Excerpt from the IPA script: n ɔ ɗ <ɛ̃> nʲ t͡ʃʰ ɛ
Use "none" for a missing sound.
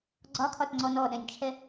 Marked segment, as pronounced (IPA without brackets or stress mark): ɛ̃